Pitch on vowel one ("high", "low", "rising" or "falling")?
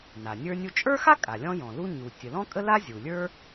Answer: low